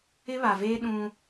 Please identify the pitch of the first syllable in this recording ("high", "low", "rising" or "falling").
high